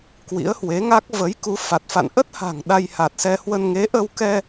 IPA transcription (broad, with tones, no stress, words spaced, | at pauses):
kwḭ˧˥ə̯hwe˨˦ŋa˦˥k̚ və˨˦jku˨˦fa˨˩t̚fa̰˧˨n ʔə˦˥t̚ha̤˨˩ŋ ɗa˧jha˨˩t̚sɛ˧hwə˧n ŋe˨˦ʔə˧wkɛ˧